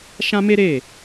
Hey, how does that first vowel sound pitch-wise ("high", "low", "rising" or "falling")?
high